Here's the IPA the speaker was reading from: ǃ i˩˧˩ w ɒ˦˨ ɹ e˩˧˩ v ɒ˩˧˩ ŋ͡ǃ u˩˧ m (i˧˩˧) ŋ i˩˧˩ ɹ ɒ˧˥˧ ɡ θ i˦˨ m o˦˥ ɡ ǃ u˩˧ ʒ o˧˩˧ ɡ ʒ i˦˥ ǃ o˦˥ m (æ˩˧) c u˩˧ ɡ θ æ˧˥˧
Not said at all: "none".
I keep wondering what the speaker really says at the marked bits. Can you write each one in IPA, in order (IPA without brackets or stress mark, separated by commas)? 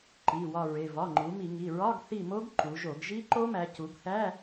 i˧˩˧, æ˩˧